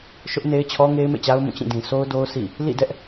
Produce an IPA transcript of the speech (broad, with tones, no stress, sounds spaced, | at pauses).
ʃ ʊ˦ ʔ n e˦ ɪ̯ t͡ɕʰ ɔ˦ ŋ e˦ ɪ̯ m ḛ˦˨ t͡ɕ a˦ ʊ̯ m ũ˦˨ t͡ɕ ĩ˦˨ d ĩ˨ sʰ o˦ ʊ̯ d o˦ ʊ̯ sʰ ḭ˦˨ | l ḭ˦˨ d ɛ˦ ʔ